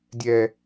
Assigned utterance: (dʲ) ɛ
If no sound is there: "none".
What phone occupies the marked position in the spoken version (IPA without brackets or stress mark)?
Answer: dʲ